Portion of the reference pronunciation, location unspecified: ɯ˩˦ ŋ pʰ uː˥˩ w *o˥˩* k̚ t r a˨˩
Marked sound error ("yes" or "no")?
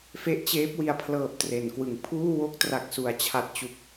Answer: yes